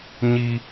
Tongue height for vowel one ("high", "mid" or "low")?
high